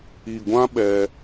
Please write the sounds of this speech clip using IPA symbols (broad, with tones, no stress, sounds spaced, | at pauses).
i˨ ɡʷ ã˦ ɓ ɛ˧